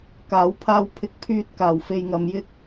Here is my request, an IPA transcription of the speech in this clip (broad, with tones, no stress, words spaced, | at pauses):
kaː˨˧wpʰaː˧w pʰɪ˧k̚pʰyː˧t̚kaː˨w fe˧jŋɐ˧mjɪ˥k̚